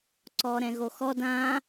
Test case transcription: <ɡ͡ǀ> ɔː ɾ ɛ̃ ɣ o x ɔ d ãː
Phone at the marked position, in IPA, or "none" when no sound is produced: ǀ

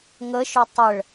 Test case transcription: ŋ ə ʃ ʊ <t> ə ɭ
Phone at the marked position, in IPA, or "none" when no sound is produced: tˤ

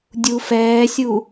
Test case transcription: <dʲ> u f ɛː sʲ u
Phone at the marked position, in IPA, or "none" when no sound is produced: dʲ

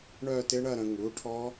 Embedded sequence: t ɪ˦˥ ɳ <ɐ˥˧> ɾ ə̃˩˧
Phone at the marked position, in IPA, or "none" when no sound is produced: ɐ˥˧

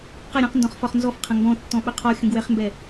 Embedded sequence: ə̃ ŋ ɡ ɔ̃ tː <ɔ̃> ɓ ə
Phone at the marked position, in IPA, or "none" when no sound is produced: ɔ̃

